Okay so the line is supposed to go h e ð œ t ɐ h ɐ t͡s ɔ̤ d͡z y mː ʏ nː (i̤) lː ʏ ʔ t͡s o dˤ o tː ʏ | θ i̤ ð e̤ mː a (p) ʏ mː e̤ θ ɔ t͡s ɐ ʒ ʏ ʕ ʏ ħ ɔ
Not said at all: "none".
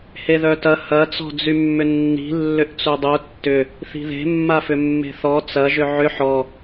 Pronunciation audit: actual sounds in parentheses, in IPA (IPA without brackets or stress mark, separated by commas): i̤, f